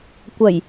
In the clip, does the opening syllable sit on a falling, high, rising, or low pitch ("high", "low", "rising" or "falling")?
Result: low